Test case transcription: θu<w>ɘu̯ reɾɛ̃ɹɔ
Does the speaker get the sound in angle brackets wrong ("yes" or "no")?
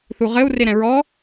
yes